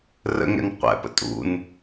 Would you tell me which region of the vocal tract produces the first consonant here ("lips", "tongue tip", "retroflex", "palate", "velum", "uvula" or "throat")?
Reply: tongue tip